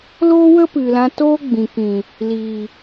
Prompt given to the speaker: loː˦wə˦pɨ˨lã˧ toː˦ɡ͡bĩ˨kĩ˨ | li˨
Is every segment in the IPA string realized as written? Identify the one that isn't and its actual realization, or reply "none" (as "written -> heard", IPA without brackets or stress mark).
none